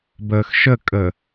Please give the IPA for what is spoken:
b əː x ʃ ə kʼ ə

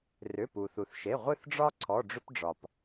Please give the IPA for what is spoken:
r ʏ˩˧˩ p u˩ θ u˩ θ ʃ e˩˧˩ ʁʷ ɨ˦˨ θ ɖ͡ʐ ɒ˦ ǀʰ ɔ˩˧˩ ɖ͡ʐ ʏ˦ p ɖ͡ʐ ɒ˩ p

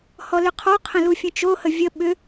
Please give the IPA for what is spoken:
h ɔ l ʏ qʰ ɔ qʰ ə̃ l u fʲ ə̃ t͡ʃ o h ə vʲ ə ɓ ʏ

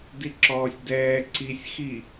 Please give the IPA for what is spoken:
d i ǁ ɔː sʲ d ɛː ǀ i sʲ x i

